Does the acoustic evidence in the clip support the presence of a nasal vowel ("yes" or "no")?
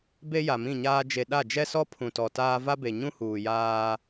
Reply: yes